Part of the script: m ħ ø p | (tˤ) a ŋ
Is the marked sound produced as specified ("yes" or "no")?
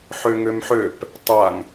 yes